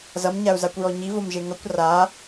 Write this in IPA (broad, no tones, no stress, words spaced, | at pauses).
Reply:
zʌmɲau̯zakʷɹɔ ɲivomʒe ŋʌkʷ ra